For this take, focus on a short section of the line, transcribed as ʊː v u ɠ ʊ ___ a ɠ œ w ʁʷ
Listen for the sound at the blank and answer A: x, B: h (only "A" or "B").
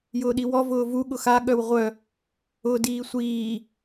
A